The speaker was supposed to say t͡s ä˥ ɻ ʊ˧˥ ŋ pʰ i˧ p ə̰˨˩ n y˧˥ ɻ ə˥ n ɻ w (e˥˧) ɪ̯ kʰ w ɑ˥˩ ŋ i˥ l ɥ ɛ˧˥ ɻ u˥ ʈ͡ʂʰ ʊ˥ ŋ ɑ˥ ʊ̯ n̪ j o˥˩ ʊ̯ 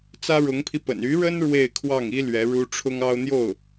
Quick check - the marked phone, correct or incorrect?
correct